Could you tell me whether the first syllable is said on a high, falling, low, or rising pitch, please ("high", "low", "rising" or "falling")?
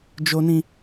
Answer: high